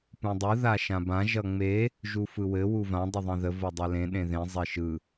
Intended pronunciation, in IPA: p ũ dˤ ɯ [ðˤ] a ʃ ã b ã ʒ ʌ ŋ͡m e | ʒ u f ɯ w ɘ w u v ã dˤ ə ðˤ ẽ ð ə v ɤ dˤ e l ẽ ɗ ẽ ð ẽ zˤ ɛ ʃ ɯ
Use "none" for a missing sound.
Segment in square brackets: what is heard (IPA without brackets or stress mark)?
ð